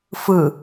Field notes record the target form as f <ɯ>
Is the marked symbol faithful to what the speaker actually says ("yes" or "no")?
yes